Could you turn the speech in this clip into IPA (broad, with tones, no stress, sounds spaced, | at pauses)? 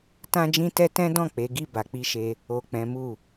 t ã˦ d͡ʒ ĩ˦ t ɛ˦ t ɛ̃˦ d ɔ̃˦˨ k͡p e˨˦ ɡ i˦˨ b a˨ k͡p i˧ ʃ e˧ | o˨ k͡p ɛ̃˨˦ m u˦˨